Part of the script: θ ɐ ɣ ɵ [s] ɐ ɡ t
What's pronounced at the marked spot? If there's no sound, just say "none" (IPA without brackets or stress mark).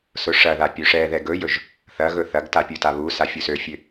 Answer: θ